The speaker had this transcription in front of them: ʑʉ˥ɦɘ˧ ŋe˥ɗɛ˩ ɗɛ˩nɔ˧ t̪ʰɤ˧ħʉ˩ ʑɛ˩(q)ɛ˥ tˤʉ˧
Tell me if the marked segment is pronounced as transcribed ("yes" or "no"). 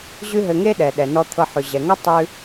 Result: no